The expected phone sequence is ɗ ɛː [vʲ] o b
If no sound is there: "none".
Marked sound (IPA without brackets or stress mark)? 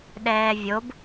vʲ